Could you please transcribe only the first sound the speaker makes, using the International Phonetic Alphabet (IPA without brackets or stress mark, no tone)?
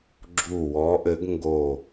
ɡ͡ǁ